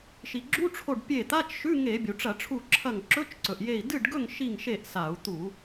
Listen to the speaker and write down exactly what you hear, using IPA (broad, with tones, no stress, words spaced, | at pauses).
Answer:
ʃi˩ɡ͡ǁu˧˥˧ʈ͡ʂʰo˧˩ɖ pʲe˧˩ t̪a˧˥˧t͡ʃʃʉ˧˥˧ŋe˧˩˧ bʲu˩ʈ͡ʂɐ˧˩˧ʈ͡ʂʰu˧˩ǁʰɐ˧˩ŋ ǁɵ˧˥˧t͡ʃǀɵ˩ʔje˧˩i̯ dɨ˥˨ɖɡɵ˥˨ŋ ʃi˥˨ŋʃe˥˨ʔsa˧˩˧u̯ t̪u˧˩˧